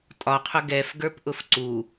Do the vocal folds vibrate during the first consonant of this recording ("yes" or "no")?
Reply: no